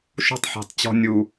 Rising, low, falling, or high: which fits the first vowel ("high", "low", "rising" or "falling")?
high